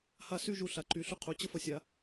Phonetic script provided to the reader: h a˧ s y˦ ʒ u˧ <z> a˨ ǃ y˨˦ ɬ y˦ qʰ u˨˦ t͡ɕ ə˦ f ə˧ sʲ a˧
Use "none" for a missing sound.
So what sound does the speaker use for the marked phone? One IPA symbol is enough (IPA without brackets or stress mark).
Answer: ɬ